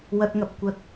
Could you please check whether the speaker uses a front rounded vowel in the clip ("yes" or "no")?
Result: no